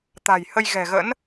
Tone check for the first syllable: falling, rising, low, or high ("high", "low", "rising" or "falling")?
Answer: low